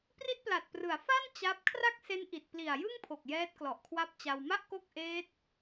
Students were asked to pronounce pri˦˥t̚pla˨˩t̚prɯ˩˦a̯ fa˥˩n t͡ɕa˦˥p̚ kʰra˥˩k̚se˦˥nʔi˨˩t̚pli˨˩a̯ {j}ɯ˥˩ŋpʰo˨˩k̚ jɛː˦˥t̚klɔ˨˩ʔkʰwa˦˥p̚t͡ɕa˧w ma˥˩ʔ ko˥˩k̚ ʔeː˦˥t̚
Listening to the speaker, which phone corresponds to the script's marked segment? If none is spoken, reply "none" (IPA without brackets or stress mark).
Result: j